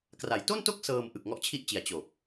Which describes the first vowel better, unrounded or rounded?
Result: unrounded